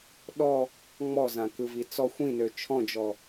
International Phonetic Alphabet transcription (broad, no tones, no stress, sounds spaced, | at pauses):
ɗ ɔ | ŋ͡m ɔ z ã k ɯ v i t͡s ɔ xʷ ĩ n ø t͡ʃʰ ɔ̃ d͡ʒ ɔ